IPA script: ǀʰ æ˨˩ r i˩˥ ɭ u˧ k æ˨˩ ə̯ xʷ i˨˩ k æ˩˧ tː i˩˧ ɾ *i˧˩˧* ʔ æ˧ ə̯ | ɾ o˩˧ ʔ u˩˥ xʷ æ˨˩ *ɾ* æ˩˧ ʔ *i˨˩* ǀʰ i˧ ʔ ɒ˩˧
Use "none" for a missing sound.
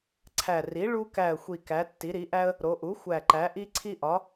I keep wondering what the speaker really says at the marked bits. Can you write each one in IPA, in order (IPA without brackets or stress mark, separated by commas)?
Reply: i˩˧, ǃ, i˧